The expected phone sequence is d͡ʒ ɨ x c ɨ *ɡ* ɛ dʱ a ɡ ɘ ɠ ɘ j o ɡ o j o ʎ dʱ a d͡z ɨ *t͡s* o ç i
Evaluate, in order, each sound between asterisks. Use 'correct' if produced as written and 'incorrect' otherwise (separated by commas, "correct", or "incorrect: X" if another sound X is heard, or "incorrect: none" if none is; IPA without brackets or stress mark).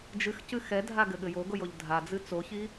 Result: incorrect: x, correct